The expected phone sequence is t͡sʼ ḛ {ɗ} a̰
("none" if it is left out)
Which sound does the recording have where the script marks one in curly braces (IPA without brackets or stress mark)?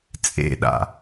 ɗ